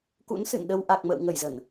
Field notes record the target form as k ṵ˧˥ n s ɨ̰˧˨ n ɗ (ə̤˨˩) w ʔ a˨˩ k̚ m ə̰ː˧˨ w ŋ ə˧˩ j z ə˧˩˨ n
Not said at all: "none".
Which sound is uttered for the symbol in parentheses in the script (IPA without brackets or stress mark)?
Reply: ə˧